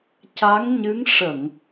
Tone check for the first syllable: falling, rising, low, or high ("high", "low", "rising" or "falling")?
rising